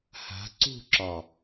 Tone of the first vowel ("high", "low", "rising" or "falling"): rising